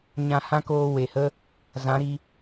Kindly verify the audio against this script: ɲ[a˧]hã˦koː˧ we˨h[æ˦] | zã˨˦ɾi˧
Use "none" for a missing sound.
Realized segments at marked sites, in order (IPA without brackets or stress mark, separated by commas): ã˧, ə˦